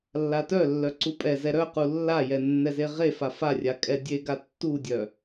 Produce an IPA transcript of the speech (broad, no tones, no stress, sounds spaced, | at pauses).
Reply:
lː a t œ lː œ ǀ u pʼ ɛ z ɛ ɾ œ q u lː a j ɛ nː ɛ z e ʁ e f a f a rʲ a kʼ ɛ dʲ e ɡ a tː u dʲ œ